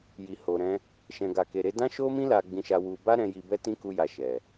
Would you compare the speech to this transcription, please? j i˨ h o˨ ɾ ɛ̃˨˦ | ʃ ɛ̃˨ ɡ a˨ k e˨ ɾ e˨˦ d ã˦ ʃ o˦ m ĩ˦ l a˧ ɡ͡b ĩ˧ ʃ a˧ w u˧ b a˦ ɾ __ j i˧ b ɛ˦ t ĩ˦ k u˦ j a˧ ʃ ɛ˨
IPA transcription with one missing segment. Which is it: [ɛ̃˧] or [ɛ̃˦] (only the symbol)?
ɛ̃˧